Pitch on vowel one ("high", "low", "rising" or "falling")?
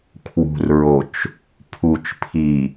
low